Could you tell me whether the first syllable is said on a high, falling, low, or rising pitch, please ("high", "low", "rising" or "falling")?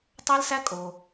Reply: high